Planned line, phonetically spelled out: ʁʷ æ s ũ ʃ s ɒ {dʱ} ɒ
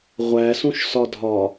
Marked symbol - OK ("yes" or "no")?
yes